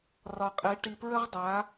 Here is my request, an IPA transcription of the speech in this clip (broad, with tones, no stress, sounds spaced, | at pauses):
r ɒ˨ qʼ e˨˦ ʈ i˨ p ɹ ə˦ ʁ dˤ a˨˦